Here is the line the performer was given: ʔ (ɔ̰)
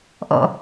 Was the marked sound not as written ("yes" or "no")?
no